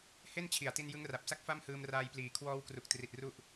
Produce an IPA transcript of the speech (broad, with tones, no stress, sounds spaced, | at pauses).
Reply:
h e˥˩ n t͡ɕʰ i˨˩ a̯ t i˧ n j ɯ˦˥ ŋ r a˨˩ p̚ s a˥˩ k̚ f a˥˩ m h ɯː˧ m r aː˧ j p l iː˨˩ kʰ w ɔː˦˥ w k r u˨˩ k̚ t r i˨˩ t̚ r u˦˥ ʔ